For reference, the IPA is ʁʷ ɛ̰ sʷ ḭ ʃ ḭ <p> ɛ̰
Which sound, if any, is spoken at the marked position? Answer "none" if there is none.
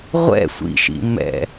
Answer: m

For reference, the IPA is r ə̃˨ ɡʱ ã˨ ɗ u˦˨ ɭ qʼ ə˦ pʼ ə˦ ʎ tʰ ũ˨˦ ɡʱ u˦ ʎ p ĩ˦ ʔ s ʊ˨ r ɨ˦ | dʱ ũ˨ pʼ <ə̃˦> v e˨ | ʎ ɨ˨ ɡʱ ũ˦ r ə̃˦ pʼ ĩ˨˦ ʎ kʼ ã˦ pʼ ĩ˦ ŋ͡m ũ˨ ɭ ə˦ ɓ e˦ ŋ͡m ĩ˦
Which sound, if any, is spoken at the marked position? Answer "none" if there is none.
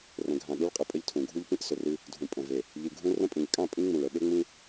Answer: ə̃˨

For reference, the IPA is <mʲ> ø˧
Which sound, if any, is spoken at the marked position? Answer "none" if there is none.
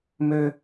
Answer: m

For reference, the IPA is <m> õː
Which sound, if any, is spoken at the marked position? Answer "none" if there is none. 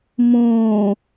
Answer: m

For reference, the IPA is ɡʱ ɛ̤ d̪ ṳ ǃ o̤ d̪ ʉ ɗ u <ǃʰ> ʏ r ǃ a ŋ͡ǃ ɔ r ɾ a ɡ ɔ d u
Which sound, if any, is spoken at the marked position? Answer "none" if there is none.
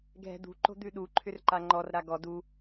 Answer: ǃʰ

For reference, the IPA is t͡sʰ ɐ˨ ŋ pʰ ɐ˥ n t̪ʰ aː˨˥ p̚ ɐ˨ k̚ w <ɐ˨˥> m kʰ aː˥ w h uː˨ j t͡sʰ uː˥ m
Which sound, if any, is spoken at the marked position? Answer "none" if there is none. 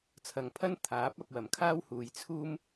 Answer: ɐ˨˩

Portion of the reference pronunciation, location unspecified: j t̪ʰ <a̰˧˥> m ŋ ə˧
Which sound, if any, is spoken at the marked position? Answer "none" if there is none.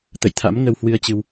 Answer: a̰˧˥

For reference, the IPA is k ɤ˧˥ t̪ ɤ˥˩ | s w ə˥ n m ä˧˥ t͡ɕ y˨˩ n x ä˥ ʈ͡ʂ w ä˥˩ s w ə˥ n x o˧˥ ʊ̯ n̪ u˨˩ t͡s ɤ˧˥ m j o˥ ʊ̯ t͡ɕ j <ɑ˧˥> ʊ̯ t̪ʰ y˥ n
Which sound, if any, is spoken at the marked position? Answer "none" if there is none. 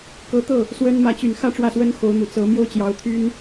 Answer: ɑ˧˥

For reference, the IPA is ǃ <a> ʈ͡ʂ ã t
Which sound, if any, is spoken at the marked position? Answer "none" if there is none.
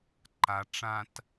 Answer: a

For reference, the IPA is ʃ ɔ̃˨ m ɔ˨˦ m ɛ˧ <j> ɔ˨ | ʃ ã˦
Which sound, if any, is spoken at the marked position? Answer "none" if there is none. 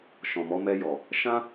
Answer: j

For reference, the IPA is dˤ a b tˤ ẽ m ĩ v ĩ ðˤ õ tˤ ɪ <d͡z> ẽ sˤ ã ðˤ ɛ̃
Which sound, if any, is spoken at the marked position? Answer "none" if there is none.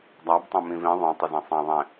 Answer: z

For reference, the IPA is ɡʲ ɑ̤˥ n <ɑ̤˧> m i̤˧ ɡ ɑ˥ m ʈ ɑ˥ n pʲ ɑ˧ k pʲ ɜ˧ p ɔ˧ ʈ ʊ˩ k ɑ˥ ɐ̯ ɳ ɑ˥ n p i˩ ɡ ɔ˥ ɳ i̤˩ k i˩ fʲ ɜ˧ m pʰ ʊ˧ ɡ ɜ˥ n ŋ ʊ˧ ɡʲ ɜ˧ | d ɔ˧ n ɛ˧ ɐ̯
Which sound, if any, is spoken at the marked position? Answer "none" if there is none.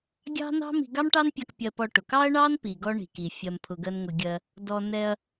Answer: ɑ̤˥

